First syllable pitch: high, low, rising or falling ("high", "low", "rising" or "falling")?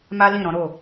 high